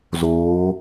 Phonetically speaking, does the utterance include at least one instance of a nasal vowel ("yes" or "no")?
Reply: no